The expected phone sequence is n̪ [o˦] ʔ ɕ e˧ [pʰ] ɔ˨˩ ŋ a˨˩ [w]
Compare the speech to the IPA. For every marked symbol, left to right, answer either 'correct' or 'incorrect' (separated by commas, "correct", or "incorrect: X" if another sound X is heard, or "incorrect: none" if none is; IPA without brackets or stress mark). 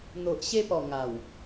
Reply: incorrect: o˨, incorrect: p, correct